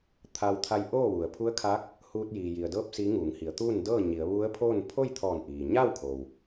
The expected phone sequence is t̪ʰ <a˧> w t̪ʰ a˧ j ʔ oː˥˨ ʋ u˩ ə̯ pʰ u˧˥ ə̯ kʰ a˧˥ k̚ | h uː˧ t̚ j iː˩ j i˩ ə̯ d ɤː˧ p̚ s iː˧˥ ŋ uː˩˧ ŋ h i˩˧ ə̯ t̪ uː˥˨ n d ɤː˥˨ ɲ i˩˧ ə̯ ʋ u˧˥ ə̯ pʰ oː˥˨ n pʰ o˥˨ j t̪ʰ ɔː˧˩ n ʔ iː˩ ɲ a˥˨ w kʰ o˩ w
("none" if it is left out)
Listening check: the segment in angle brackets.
a˧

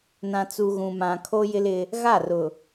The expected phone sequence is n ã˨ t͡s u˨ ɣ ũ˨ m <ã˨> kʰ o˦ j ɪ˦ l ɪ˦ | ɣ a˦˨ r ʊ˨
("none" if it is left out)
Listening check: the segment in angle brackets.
ã˨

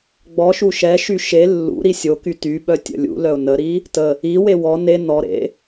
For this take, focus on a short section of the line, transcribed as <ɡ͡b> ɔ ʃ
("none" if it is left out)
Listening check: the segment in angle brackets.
ɡ͡b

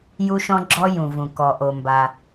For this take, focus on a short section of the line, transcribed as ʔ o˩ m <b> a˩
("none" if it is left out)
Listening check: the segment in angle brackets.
b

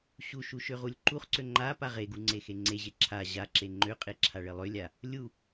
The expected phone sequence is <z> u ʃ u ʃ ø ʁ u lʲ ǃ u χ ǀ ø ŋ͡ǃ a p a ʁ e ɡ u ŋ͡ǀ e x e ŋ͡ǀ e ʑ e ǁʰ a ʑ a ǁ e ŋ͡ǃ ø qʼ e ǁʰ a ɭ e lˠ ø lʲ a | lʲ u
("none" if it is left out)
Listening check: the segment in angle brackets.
ɕ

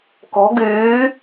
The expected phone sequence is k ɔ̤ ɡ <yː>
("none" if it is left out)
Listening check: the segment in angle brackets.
yː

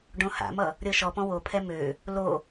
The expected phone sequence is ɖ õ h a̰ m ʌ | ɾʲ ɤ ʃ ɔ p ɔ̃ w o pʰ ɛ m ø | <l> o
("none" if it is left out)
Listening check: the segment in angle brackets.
l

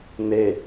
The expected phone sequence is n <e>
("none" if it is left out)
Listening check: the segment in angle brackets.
e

